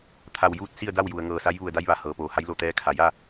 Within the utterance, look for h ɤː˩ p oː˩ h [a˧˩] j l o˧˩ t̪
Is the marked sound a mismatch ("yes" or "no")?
yes